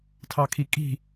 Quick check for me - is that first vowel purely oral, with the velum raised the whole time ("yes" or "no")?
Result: yes